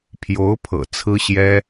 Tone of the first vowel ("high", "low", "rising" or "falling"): rising